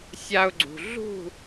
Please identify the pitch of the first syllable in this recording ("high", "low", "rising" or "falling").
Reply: high